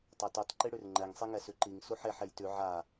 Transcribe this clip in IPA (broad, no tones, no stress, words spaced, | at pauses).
tˤatʉtˤ ǃiɽʉrŋ͡ǃɛŋ sˤiŋɛsʉǃiŋ suħeħ ejtʉ ʕa